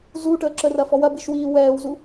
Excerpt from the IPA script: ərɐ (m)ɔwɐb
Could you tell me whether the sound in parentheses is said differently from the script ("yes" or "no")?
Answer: yes